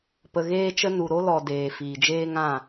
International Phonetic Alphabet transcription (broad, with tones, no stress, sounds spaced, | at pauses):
p ə˧ ɣ eː˦ t͡ʃ ə˦ n u˨ ɾ o˧ l ɔ˨ d eː˨ f iː˨ d͡ʒ eː˦ ŋ ã˦˨